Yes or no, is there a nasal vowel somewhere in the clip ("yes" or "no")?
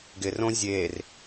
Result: yes